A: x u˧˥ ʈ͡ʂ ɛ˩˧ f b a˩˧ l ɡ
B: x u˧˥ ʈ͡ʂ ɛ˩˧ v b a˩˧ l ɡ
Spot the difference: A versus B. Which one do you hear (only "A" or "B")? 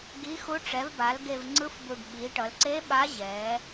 B